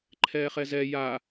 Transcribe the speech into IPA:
ǃʰ ɛː χ ɛ z ɛ j a

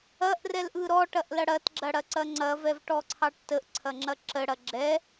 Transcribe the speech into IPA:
ɐ ʔ r ɛ l ʔ ɯ ɾ ɔ ʈ ɐ ʔ l ɐ ɽ ɐ t ɡ͡ǁ ɐ ɽ ɐ ǀ ɐ ŋ͡ǀ ɐ v ɛ v ʈ ɔ ǀʰ ɑ ʈ t ə ʔ ǀʰ ɐ ŋ͡ǁ ɐ ǁ ə ɽ ɐ ɡ͡ǁ ɛ

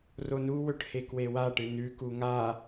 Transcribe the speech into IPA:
r o n u w ɵ ʈ h e k w e w a ʈ ɨ n ʉ k u ŋ a

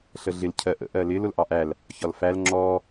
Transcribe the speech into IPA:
ɬ ə ɮ ɪ l cʰ ɜ ʔ ə̰ ʔ ɜ l ɪ l ʊ l ʔ ɑ ʔ æ l | ç ɒ l f æ l ŋ͡ǁ ɔ

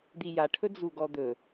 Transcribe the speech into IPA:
d̪ i j a ʈʰ ɵ d͡z u ɡ ɔ d̪ ɵ

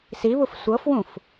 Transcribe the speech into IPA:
s i β u f sʷ ɤ f w ũ f

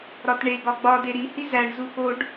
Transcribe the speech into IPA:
ɾ ɒ t ɳ e ɡ ɒ ɡ͡b ɒ d e ɾ i h i z æ ɳ z u x o ɖ

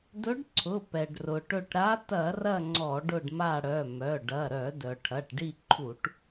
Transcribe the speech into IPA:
d ɵ˧˥ ɖ ǀʰ ʊ˩˧˩ p ɛ˩ ɖ r ʊ˩ ʈ ɵ˦˨ ʈ ɾ a˧˥ t ɐ˧˩˧ r ɐ˦˨ ŋ͡ǀ ɔ˧˩˧ ɖ ʊ˦˨ ɖ m a˦˨ ɽ œ˩˧˩ m œ˩˧˩ ɖ ɐ˩˧˩ ɾ œ˧˩˧ d œ˩ ʈʰ ɐ˩˧˩ ʈ ɖ i˦˨ ǃʰ u˧˩˧ ʈ

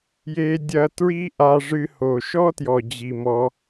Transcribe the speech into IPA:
j e˦ dʲ ɐ˦ t ɹ i˦ ʔ a˧ ʐ ɨ˧ h o˨ ʃ ɔ˦ t j ɔ˨ d͡ʑ i˨ m ɔ˧

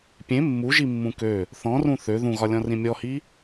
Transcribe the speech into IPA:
pʲ ẽ mː u ʒ i mː ũ k ø | θ ɔ̃ r ũ θ ø ð ũ ɣ ɒ lʲ ɔ̃ r ĩ mʲ ɔ h i

